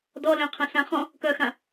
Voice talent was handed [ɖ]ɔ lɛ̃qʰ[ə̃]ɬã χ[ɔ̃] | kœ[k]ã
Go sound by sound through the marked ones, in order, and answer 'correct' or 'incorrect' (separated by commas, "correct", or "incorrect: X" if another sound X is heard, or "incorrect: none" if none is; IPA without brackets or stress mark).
incorrect: d, correct, correct, incorrect: x